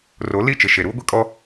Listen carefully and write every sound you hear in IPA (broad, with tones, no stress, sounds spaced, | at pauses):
r o˨˦ l i˦˨ t͡ʃ ɪ˨ ʃ e˨ ɾ uː˦ ɡʷ i˦ kʼ ɔ˦